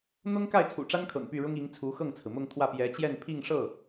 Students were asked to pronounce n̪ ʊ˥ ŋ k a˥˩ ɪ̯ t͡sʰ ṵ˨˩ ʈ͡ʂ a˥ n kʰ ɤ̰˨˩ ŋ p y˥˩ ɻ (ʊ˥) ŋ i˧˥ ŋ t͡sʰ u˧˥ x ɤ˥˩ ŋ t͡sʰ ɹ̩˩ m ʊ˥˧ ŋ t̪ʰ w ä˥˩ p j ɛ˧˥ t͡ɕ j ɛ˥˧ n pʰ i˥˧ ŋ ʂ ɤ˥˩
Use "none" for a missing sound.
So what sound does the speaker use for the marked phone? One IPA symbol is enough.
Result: ʊ˥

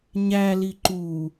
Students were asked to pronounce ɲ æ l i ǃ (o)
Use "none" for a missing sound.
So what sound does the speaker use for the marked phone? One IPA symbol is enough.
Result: u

